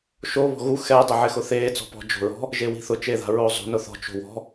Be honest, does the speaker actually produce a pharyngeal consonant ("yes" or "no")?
yes